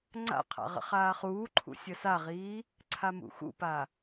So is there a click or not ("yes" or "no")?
yes